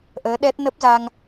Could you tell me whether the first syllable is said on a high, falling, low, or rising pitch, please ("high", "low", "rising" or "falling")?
rising